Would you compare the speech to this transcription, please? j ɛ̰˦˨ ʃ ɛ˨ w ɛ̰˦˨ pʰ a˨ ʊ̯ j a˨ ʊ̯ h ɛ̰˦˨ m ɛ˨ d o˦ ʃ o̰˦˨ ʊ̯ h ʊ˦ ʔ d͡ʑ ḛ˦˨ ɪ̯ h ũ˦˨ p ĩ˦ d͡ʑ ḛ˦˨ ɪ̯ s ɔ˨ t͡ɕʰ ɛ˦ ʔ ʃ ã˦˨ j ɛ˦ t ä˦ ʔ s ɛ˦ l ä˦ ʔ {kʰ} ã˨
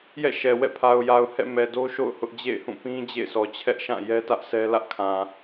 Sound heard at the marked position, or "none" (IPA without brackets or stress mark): kʰ